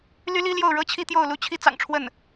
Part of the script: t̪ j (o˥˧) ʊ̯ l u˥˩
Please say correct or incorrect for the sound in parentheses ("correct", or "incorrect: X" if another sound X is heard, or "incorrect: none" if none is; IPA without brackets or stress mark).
correct